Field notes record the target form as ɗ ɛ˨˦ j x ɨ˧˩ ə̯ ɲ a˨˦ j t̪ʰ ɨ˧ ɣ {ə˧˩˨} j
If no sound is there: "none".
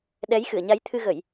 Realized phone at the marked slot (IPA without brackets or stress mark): ə˧˩˨